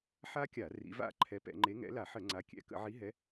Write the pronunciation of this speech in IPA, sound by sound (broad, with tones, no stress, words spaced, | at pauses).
ħa˦˥kʲa˧˩˧ rḭ˨˦va̰˦˥ ǃʰɛ˨˦pɛ̰˧˩˧ŋ͡ǃe˨˦ ŋɛ̰˨˦la˧˩˧ħə˧˩˧ ŋ͡ǀa˨˦ kʲɛ̰˧˩˧ kə̰˧˩˧ʕi˨˦ɦɛ˨˦